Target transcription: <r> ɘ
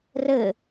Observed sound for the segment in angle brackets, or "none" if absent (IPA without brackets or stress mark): r